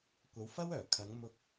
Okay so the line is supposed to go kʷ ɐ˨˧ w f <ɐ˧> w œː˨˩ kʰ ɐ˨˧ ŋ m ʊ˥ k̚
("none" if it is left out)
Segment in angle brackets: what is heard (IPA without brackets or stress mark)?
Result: ɐ˥